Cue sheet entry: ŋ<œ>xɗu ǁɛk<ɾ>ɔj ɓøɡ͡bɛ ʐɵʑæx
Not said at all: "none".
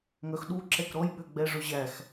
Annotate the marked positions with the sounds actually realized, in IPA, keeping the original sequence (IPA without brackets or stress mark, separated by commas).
œ, ɾ